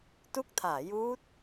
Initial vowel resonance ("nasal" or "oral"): oral